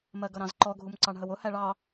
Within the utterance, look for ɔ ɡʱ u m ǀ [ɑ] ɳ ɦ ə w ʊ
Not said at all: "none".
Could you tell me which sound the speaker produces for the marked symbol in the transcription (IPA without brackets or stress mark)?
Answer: ɑ